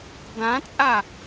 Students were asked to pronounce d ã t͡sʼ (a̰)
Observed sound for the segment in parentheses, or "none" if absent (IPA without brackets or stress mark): a